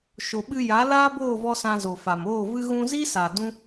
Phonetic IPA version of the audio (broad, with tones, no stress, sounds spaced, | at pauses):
ʃ o˨ ɓ ɨ˧ j a˨˦ l aː˦ b oː˦˨ v ɔ˧ s ã˧ z o˨ f a˨ m oː˦˨ v ɨ˧ ɣ ũ˧ z i˦ s a˨ d ũ˦